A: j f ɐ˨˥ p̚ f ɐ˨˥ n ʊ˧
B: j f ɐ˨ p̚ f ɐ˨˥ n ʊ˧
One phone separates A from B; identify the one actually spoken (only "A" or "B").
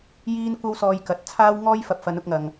B